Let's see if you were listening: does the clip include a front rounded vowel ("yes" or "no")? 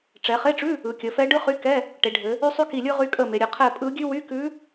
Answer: yes